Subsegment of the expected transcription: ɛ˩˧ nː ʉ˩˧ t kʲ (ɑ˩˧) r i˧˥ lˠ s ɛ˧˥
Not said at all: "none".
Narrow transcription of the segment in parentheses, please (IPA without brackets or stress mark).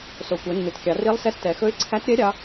ɑ˩˧